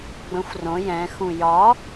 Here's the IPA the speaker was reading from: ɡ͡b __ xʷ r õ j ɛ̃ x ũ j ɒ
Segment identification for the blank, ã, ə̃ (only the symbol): ə̃